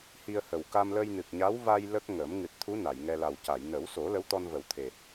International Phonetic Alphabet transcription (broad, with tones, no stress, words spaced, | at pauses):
hi˧ə̯hə˨˩w ka˧mlə˧jnɨ˨˩k̚ ɲa˧˥wva˧j lə˦˥k̚ŋəː˨˩˦m ŋɨ˨˩t̚t̪ʰu˧˥ na˨˩˨jŋɛ˧ la˨˩wca˨˩˨j nə˨˩˦wso˨˩˦ lə˧˥wt̪ɔ˧nvə˨˩˦wt̪ʰe˨˩